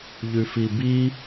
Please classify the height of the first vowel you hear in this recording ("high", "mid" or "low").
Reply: high